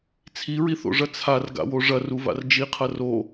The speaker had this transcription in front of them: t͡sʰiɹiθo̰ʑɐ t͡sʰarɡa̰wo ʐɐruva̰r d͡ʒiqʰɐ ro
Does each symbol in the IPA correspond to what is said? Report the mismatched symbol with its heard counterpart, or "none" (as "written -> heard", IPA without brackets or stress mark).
ʑ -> ʐ